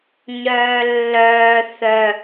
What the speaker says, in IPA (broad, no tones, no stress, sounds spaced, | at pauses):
ɲ œː lː œː θ œ